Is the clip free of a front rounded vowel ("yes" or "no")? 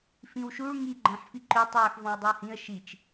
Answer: no